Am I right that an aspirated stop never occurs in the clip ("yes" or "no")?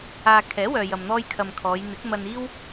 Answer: no